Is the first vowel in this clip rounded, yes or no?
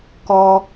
yes